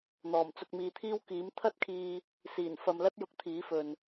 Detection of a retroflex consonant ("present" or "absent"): absent